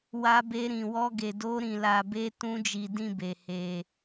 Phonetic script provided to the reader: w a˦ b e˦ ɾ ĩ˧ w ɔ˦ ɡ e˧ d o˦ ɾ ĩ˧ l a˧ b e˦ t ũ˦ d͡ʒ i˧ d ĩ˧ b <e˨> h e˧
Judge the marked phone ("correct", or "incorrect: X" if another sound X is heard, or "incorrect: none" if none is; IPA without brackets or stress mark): correct